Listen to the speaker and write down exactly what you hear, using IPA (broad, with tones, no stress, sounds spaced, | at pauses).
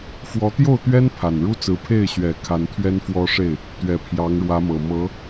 f w ɔ˧˥ t̪ j o˥˩ ʊ̯ t̪ ɥ ɛ˥ n pʰ a˨˩ n ɻ u˥ t͡s ɹ̩˧˥ pʰ e˥˩ ɪ̯ ɕ ɥ ɛ˨˩ kʰ a˧˥ n t̪ʰ ɥ ɛ˥ n f w ɔ˥ ʂ e˥˩ ɪ̯ | t̪ ɥ ɛ˨˩ pʰ j ɑ˧˥ ŋ ɻ w ä˧˥ m ɤ˨˩ m ɤ˧˥